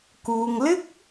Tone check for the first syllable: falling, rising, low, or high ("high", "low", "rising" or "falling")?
low